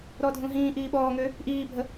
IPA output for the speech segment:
ɾ ɔ dʱ ũ ɦ ĩː ʔ iː ɓ ɔː ŋ ø | ʔ iː bʱ ə

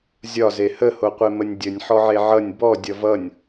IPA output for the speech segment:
zʲ ɒ z e h ə h o qʷ e m ə nʲ dʲ ə nʲ ħ ɔ ʕ e ʕ ʌ nʲ b ɔ dʲ ʌ v ʌ nʲ

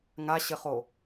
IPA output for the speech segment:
ŋ a ɕ ɘ χ o

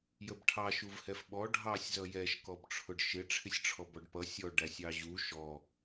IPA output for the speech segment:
j ə b ʈʰ ɑ ʃ u v h ɛ f ɓ ɔ ɖʱ ɑ sʲ z ʌ j ɛ ʃ k ɔ b ʈ͡ʂʰ ʊ ɖ ʃ ɪ ʈ͡ʂʰ ɪ sʲ ʈ͡ʂʰ ɔ b ɔ ɖ p ʌ sʲ ɔ ɖ æ sʲ ɑ ʑ u ʃ ɔ

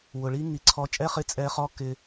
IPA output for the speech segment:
w ʊ˨ ɭ i˦ ŋ i˨ ǀʰ ɔ˧ t͡ʃʼ ɛ˦ χ ɪ˦ t͡sʼ ɛ˧ χ ɔ˦ k ɪ˧

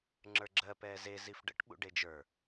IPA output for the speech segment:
ŋ͡ǁ ə˞ ɡ͡ǁ ɜ p ɛː z e z i f ɖ ə̰ ʈ ɓ ṵ ɖ e d͡ʒ ə˞

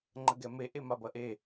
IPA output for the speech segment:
ŋ͡ǃ ə ɡ ɛ m e ʔ e m a b ɐ ʔ e

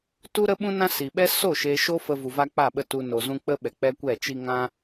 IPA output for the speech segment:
t u˦ ɾ ə˦ ɓ ũ˦ n ã˦ s i˨ ɓ ɛ˦ s o˦˨ ʃ e˧ ʃ o˦ f ə˧ v u˨ v a˧ k͡p a˦˨ ɓ ə˦˨ t u˧ n o˨ z ũ˧ k͡p ə˦ ɓ ɛ˨ k͡p ɛ˦ kʷ ɛ˦˨ t͡ʃ i˧ ŋ ã˧

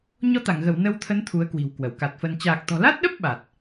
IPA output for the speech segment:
ɲ ɔ˧ t̪ a˧˩ ŋ ɣ ə˧˩ w n ə˧ w t̪ʰ ə˨˦ n t̪ʰ u˨˦ ə̯ k w i̤˨˩ w k w ə˧˩ w k a˨˩ t̚ f ə˧ n t͡ɕ aː˨˩ k̚ t̪ ɔ̤˨˩ l a˦˥ t̚ ɗ ə˦˥ p̚ ɓ a˨˩ t̚

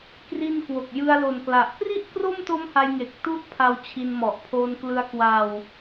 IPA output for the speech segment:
k r i˧ n k w o˨˩ k̚ j ɯ˧ a̯ l o˨˩ n k l a˨˩ ʔ p r i˥˩ ʔ k r o˥˩ m t o˦˥ m h a˧ j ŋ e˨˩ k̚ t u˦˥ ʔ pʰ a˧ w t͡ɕʰ i˧ n m ɔ˨˩ ʔ pʰ oː˧ n k l ɯ˧ a̯ k w a˧ w

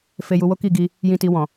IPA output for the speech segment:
f e˧ j u˧ w o˦ k i˦˨ ɡ i˧ | j ĩ˧ t i˧ w ɔ̃˨

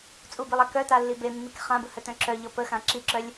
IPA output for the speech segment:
t͡sʼ u b i lˠ a k œ t a lː i b e mː i k χ ã b ɯ h œ t œ̃ ǁ œ ʎ ɔ p ə x ã ǁ i ǁ œ lʲ

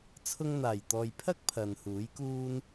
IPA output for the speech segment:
t͡sʰ ʊ˧ ŋ n̪ aː˨˩ j t̪ ɔː˨ j pʰ ɐ˥ k̚ pʰ ɐ˨ n h uː˨˥ j k uː˥ n

